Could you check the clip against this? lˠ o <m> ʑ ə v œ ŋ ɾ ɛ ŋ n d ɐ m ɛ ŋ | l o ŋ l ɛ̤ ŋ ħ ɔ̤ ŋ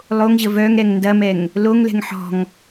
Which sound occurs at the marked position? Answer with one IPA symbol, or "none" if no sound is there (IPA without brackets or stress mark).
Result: ŋ